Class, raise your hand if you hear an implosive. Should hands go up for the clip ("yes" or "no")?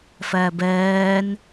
no